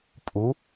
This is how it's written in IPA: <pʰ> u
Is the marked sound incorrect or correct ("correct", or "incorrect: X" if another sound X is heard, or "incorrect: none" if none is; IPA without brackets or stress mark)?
incorrect: pʼ